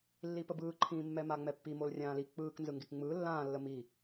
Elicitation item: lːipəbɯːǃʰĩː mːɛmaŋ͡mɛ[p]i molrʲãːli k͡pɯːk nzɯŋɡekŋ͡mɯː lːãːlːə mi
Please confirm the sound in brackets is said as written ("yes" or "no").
no